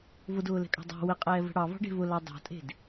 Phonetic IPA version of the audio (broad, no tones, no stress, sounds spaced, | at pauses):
v ʊ d ʊː l ɛ̤ kʼ ɑ̤ dˤ ɑ̤ w ɘ qʼ ɛː v ə̤ ɽ ɑ v ɑ̤ ɖ e̤ v ʊ l ɑ dˤ ɑ̤ tʼ e̤ d